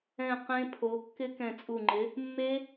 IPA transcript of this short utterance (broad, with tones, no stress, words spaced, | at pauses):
ɛ̃˧˩ qẽ˦˥pʰo˨˥ kːɪ˦˥kɛ̃˧˩t͡sʼu˧˩ŋ͡ǃɪ˨˥ | mːe˦˥